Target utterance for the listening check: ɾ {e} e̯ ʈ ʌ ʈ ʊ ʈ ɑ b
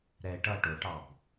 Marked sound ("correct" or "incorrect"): incorrect